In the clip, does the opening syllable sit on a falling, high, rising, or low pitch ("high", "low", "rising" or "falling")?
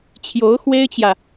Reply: rising